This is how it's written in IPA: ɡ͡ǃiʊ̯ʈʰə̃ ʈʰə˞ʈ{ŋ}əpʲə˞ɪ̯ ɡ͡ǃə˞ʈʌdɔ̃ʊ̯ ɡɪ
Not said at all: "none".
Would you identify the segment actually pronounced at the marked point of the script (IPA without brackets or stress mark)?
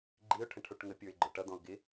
ŋ